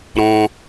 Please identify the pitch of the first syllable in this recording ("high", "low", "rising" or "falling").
high